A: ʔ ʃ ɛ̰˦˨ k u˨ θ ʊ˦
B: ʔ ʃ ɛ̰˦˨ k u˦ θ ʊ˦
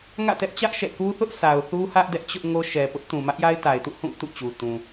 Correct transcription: B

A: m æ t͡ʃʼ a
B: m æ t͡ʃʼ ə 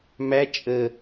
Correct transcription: B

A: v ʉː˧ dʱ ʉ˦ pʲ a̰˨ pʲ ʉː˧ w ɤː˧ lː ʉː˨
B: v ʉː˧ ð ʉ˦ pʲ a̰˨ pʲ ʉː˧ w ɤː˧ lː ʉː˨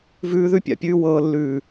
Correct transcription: B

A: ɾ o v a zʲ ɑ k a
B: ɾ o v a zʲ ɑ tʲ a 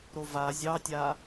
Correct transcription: B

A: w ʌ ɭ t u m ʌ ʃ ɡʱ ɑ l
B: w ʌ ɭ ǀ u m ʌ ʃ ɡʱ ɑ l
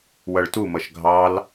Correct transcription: A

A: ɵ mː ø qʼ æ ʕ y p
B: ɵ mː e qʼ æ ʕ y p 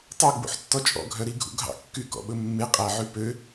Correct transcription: B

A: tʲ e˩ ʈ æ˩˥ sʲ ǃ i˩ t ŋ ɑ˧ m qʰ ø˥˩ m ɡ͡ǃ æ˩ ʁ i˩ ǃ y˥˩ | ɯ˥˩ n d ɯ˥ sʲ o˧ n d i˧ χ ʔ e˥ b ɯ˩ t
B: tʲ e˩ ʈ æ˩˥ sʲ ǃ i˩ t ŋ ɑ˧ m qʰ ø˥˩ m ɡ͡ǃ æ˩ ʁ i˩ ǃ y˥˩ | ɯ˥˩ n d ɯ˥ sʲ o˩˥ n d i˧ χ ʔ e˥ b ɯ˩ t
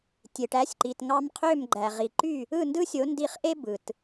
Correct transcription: B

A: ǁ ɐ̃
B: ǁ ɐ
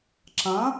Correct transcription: A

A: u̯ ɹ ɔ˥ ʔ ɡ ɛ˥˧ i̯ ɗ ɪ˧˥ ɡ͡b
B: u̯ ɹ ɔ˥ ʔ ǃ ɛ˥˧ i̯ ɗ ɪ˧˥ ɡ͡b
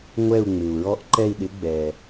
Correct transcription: B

